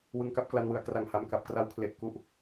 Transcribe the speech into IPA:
wɯ˧ŋka˥˩p̚kla˧nwɯ˩˦a̯ kra˨˩ŋha˨˩m ka˨˩p̚kra˧wkʰle˨˩ʔ ku˨˩ʔ

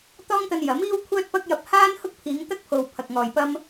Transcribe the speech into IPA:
t̪ɔː˥ŋt̪ɐ˧njɐ˨˥miː˥w kʷʰœː˧t̚pɐ˧k̚jɐ˨p̚ haː˥n hʊ˥k̚pʰiː˨˧ŋt̪ɐ˥k̚pʰo˨w pʰɐ˨k̚ŋɔː˨jpɐ˥m

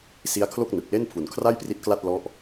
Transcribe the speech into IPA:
si˦˥a̯kʰlo˥˩k̚nɯ˨˩k̚le˥˩n pʰu˩˦nkʰra˥˩jpri˦˥t̚kla˥˩t̚ lɔ˦˥ʔ

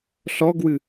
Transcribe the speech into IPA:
ɬɔɡwɨ

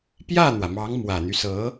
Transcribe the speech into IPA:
pjä˥˩n̪wä˩ mɑ˧˥ŋmwä˨˩n̪y˦sɤ˧˥

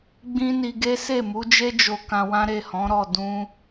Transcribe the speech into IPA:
ɡ͡bĩ˦ni˧ɡe˦ se˦˨mu˨˦d͡ʒe˦ d͡ʒo˧kã˧wã˦ɾe˦˨ hɔ̃˨˦ɾɔ˦˨ dũ˧

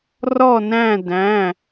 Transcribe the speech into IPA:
rɔ˦˨næ̃˦˨dæ̃˩˧˩

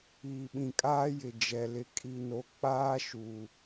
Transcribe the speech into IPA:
iː˨ɓĩ˨kʼaː˦jɪ˨ d͡ʒɛ˨ lɪ˨kʼi˨no˨ k͡paː˦ʃuː˨

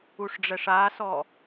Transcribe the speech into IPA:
uʂɖ͡ʐɛʂasɔ

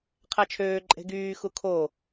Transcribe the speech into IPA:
qʰæt͡ʃʰøː ǃʼe̤ɡyː xukʰo

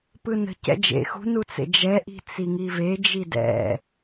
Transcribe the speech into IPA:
pɯnə̤ cɛ̰d͡ʒḛ xṳnut͡sḛ d͡ʒɛʔi̤ t͡siŋive d͡ʒidɛ̰

